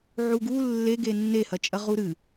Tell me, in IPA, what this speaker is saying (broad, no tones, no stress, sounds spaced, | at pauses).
ʕ u ɡ u lː e ɡ e nː e h ɐ t͡ʃʼ ɐ ʁ u ɾ ɨ